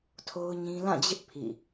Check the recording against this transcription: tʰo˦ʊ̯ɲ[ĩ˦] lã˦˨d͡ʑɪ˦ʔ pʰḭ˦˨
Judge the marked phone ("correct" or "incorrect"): correct